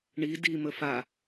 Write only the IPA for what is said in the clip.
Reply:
ɳi dimə fa

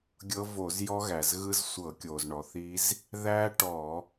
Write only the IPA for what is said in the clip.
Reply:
ɡʲɤ˦˥vo˧˩˧z jɔ˦˥ɣæ˩zɣɯ˦˥z sʷɤ˧˩˧kʲo˩z ɳɔ˩θi˦˥z | ðæ˦˥ ʈɔ˧˩˧

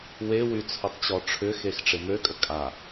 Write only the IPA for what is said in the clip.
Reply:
wewy t͡sʰʊtˤt͡ɕɔʈ͡ʂʰʏxex ʈ͡ʂɪmøkʼə kʼa

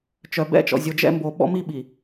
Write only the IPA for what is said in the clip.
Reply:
t͡ʃœ˨bɛ̰˦t͡ʃɔ̰˨ zʲo˨d͡ʒɛ̰˦ mbo˨ɓɔ̰˦mi˦ɓi˨

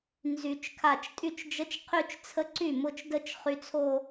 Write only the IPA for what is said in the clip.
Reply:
nzy˨˩˦t͡ʃkʰa˧˩t͡ʃ tʼy˥˩t͡ʃd͡ʒə˦˥t͡ʃqʰy˥˧t͡ʃt͡sʰə˦˥ ǀy˥˩mʊ˥˧t͡ʃdə˥˧t͡ʃ χy˦˥t͡sʰo˥˧

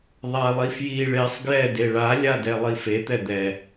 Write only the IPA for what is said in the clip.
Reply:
ðˤalˠi fji ɭesˤ ɡjɛ deɭalʲa dɛlˠifet̪ɛ d̪ɛ

